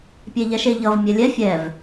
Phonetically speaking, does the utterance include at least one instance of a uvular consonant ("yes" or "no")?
no